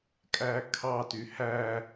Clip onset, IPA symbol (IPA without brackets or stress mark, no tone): kʼ